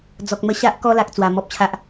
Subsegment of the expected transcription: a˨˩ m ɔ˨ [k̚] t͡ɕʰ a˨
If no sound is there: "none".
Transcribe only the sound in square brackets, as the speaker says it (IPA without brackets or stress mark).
p̚